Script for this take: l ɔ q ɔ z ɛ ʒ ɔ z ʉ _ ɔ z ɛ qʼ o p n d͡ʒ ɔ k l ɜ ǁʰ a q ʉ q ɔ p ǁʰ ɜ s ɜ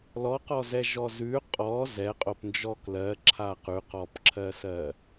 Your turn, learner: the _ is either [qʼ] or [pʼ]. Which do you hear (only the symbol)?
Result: qʼ